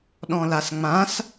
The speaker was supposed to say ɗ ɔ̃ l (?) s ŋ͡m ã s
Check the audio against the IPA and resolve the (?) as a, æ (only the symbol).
a